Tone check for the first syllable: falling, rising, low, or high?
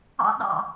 high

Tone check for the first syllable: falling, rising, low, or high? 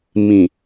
low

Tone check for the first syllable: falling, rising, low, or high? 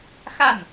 falling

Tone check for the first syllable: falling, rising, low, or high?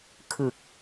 low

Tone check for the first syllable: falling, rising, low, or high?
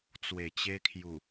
low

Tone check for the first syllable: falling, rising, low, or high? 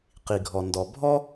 low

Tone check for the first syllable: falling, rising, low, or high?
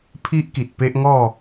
high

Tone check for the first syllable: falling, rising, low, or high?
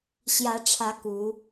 rising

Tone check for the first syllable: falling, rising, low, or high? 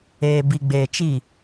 low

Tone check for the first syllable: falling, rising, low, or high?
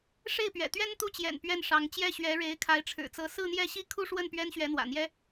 falling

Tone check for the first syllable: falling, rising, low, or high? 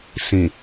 low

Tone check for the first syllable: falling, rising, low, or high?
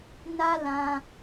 high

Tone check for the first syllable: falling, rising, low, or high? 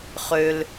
high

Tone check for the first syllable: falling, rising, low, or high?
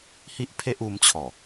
high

